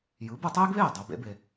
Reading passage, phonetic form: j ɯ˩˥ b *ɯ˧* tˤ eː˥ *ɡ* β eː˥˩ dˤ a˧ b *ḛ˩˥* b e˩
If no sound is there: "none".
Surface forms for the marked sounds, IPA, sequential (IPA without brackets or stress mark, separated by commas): ɯ˧, ɡ, ḛ˩˥